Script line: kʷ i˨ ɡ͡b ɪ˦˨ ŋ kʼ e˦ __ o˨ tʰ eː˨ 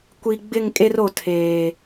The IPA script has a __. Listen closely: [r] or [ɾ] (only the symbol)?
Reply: r